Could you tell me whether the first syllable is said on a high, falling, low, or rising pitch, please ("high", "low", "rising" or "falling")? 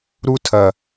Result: high